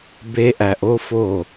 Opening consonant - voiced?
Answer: yes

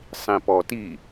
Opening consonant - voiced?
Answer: no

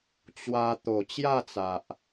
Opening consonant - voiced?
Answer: no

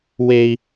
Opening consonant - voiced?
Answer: yes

